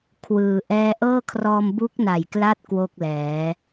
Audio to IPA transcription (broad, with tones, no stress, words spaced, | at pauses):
kʰwɯː˩˦ʔɛː˥˩ ʔɤː˥˩kʰrɔː˧m bu˦˥k̚na˨˩jkla˦˥t̚ kwo˥˩k̚lɛː˩˦